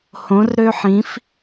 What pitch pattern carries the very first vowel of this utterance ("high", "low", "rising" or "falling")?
rising